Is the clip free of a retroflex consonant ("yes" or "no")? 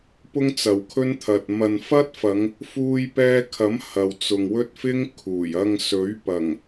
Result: yes